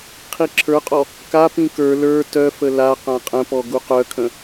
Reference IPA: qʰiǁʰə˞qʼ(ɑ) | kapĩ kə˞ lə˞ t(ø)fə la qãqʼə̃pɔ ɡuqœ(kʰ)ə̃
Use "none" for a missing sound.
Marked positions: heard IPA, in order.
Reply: ɔ, œ, kʰ

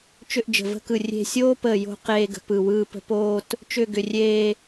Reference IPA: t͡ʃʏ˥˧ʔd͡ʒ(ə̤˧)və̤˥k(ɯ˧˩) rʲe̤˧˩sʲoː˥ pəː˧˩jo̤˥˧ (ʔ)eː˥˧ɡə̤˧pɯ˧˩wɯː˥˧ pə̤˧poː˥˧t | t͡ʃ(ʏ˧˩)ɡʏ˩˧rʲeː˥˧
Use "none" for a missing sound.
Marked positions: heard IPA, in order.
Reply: ə̤˧˩, ɯ˧˩, q, ʏ˥˧

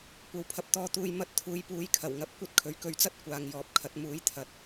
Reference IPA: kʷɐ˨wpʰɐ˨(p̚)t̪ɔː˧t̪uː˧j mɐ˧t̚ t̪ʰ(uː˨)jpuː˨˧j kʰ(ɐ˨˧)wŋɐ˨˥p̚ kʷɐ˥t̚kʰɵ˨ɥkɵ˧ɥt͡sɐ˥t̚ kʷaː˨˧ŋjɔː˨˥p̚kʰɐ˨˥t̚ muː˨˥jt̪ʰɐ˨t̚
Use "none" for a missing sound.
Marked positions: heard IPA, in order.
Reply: p̚, uː˨˧, ɐ˨˩

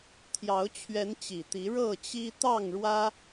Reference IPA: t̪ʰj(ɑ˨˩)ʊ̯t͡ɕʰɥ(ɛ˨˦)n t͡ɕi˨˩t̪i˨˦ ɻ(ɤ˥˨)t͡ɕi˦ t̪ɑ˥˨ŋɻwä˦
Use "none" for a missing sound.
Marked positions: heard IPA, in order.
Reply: ɑ˨˦, ɛ˨˦, ɤ˥˨

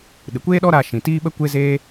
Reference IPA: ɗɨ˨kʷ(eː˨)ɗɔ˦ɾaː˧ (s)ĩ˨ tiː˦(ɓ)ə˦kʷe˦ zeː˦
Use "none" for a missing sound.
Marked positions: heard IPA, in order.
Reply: eː˦, ʃ, ɓ

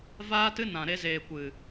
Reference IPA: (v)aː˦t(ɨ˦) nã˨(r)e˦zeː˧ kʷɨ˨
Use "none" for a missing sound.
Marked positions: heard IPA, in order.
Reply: v, ɨ˦, ɾ

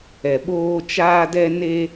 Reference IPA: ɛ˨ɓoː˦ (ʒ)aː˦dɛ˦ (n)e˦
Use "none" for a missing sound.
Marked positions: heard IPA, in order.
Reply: t͡ʃ, n

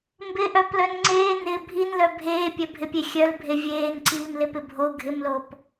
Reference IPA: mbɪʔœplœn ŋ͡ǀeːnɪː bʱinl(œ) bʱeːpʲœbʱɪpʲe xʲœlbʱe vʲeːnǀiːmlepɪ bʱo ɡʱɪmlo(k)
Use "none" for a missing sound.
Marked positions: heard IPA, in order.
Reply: œ, p

